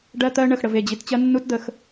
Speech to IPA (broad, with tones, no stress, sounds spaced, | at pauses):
ɖ ɜ˦ t̪ ɜ˦ ɳ ə˨ x ɽ ə˨ v e˦˨ d͡ʑ i˨ t t͡ɕ ɜ˦ nː u˦ t d̪ ə˨ x